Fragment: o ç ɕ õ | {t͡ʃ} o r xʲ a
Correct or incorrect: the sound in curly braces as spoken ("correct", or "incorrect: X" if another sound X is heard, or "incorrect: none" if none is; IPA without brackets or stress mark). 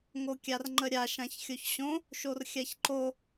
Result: incorrect: ʃ